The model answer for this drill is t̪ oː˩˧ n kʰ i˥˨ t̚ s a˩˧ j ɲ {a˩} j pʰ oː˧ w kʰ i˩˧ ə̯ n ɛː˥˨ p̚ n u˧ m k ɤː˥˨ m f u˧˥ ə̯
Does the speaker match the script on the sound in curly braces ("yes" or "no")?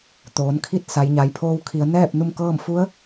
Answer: no